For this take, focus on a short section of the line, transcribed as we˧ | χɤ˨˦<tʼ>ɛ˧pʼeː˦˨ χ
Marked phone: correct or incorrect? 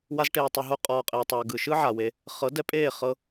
incorrect